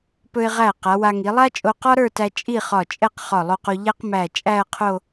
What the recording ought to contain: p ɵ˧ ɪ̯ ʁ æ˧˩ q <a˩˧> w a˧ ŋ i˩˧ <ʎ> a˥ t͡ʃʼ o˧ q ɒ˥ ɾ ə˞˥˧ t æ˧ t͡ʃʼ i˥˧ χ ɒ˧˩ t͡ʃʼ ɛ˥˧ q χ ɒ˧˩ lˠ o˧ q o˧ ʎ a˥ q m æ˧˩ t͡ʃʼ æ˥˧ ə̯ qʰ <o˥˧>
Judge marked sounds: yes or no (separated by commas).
yes, no, yes